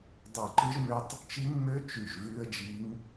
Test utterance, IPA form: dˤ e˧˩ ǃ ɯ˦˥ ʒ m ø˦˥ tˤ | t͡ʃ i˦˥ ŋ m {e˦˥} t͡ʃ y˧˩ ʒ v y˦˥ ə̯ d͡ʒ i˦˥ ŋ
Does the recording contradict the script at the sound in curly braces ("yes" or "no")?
yes